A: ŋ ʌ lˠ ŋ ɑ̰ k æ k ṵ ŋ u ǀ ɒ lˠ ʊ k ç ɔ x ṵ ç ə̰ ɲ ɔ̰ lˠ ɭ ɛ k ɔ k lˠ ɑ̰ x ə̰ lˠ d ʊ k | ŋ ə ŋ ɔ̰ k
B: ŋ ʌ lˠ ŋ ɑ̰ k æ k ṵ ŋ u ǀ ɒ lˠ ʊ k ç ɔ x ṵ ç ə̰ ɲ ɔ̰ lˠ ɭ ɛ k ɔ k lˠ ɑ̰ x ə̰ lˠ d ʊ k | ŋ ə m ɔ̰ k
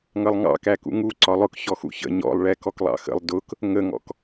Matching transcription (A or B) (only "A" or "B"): A